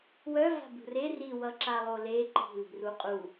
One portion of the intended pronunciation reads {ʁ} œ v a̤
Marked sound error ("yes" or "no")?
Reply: yes